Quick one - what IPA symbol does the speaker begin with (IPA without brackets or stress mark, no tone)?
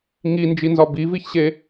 ŋ